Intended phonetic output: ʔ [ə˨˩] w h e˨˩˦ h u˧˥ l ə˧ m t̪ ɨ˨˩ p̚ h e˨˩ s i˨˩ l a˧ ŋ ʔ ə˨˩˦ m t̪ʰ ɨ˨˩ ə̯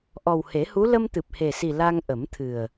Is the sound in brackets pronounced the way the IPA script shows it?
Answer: no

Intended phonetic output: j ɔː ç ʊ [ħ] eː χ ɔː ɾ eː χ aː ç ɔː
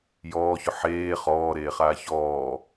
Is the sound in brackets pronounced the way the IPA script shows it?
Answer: yes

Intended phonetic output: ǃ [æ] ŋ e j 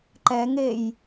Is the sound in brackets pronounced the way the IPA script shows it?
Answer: no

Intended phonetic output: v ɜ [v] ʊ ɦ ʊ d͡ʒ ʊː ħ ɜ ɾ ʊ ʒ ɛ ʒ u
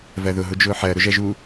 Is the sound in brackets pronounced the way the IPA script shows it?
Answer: no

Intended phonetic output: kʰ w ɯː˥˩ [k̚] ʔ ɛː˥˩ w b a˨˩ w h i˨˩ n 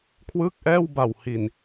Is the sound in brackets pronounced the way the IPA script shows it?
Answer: yes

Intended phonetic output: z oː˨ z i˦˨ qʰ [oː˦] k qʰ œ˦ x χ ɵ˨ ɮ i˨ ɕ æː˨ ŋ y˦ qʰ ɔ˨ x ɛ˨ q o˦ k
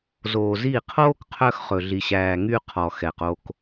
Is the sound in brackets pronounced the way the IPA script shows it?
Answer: yes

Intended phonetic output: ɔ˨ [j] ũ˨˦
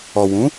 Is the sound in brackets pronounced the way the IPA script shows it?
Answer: no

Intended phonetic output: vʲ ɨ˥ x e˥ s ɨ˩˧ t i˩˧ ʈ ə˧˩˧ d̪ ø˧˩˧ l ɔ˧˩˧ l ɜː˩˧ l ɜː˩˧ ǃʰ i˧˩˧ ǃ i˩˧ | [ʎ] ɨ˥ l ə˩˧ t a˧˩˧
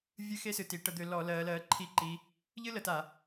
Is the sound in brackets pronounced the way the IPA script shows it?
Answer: yes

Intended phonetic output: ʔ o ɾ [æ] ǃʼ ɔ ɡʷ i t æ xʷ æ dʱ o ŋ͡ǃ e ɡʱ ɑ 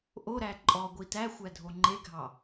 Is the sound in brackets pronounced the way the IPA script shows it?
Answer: yes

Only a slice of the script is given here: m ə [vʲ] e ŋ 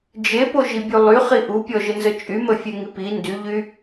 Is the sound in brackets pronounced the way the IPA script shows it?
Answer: no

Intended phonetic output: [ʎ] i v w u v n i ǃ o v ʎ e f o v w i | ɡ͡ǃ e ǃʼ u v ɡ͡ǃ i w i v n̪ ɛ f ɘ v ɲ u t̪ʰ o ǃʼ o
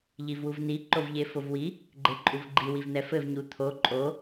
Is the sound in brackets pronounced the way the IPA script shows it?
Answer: yes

